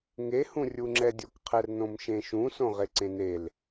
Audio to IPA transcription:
ŋ e h ũ rʲ u ŋ͡ǁ ɛ dʲ o k qʰ ɛ r n õ m ʃ ẽ ʃ ũ s õ ʁ e ǀ ẽ n e l

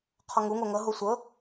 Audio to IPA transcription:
qʰ ɔ ŋ u ŋ o ŋ ɤ ɦ o sʷ ɤ

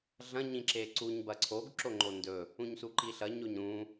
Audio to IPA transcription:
ɮ ɐ̃ ɲ ĩ ǁ e ǀ u ɲ b ɐ ǀʰ o ɡ ǁ o ŋ͡ǃ o n d ɵ | ũ ɲ s u ǃ i ɬ ɐ ɲ o ɲ ɾ ũ

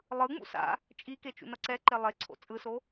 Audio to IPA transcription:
lˠ ɯ ŋ͡m ṵ s a̰ | t͡ʃʼ i k e t͡ʃ ṵ n ʌ ǀ ɛ ǃ e lˠ e ǀʰ o̰ t͡sʼ ɯ s o

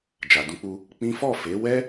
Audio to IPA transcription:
d͡ʒ a˨ d ũ˧ k͡p u˧ | k͡p ĩ˦ f ɔ˦˨ f e˨˦ w ɛ˦

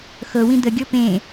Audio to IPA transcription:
x ɤ w ĩ d̪ ə ɡʲ ɤ p ẽ

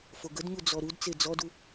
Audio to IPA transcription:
f o ɡ ə d ɲ u d͡z ɔ ɾ u d t͡s e d͡z ɔ d u

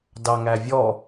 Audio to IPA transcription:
d ɑ ŋ æ vʲ ɔ

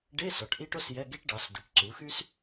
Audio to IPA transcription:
ɖ e˧˥˧ s ɔ˩˥ ʈ ʔ i˥ ʈ o˥ s j ɛ˧˥˧ ɡ e˥ ʈ ɖ ɑ˩˥ s d u˩˥ p ǀ u˩˥ x y˥ s

